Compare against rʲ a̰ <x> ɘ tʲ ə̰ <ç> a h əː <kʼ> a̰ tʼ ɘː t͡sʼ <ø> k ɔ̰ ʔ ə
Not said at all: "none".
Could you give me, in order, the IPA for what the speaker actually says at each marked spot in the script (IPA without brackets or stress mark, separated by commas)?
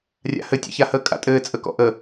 h, ç, kʼ, ə